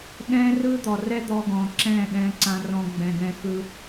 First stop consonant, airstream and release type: implosive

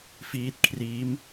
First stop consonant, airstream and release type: plain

